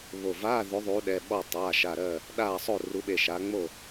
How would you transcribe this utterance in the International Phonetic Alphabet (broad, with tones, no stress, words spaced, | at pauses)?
βo˧˩ vaː˧˥˧ðʉ˨˦ðˤu˨˦ ɗɛ˩˧˩ɓɔ˥˨ tˤaː˩˧˩ʃa˧˩ ɾɜ˥˨ | ɗaː˥˨sˤo˥˨ ru˨˦ɓe˧˩ ʃa˨˦ŋ͡mo˥˨